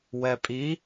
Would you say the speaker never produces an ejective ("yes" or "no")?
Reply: no